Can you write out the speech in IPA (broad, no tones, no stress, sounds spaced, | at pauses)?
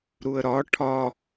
ɾ u ə̯ ɾ ɒ ʈʰ ɒ